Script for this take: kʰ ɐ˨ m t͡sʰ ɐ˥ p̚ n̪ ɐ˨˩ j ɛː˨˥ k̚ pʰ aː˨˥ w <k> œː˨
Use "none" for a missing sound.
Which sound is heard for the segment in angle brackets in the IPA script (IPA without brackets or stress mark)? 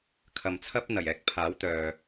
t̪